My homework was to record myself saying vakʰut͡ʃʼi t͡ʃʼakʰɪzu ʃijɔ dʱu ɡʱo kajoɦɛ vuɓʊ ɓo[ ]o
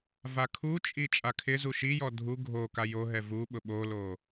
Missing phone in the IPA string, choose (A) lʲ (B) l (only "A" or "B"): B